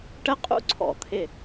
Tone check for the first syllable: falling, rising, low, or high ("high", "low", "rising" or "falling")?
high